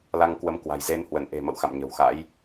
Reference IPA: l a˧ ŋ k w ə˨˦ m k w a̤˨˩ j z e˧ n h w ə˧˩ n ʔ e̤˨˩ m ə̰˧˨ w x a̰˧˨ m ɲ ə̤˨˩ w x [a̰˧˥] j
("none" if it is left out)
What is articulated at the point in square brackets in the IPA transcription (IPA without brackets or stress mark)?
a̰˧˥